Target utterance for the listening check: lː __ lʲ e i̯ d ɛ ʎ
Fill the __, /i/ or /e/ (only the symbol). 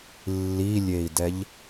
i